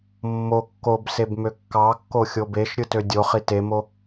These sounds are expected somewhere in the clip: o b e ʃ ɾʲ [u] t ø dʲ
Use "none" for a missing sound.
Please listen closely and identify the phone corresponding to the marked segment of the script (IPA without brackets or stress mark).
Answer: ɯ